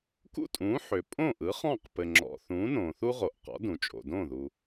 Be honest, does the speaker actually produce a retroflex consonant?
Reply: no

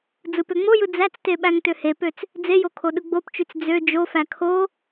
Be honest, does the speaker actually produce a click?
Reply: no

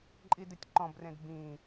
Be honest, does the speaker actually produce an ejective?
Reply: yes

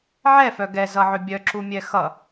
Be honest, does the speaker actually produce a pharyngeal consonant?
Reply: yes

